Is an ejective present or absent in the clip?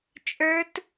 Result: present